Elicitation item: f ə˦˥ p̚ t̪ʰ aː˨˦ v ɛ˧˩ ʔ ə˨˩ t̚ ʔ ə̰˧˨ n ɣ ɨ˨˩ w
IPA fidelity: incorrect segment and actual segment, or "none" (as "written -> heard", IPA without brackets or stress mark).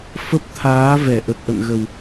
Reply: ɨ˨˩ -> ə˨˩